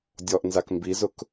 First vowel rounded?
yes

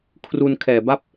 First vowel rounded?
yes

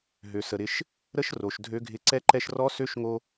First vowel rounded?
yes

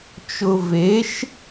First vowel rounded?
yes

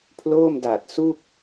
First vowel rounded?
yes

